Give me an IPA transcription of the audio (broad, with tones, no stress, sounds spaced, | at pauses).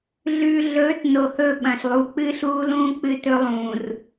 ɮ ʉː˨ ɮ ɵː˨˦ t n o˨ h ɵ˦˨ ɓ ɐ̃˨ ɬ lˠ u˨˦ k͡p ɨː˦ ɬ uː˦ l ũː˦ k͡p ɨ˦ t ɵ˦ lˠ ũː˨ r